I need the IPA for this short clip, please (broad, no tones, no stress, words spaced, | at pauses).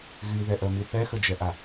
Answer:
ɣyðɛʔœmi θɛxəd͡ʒɛʔa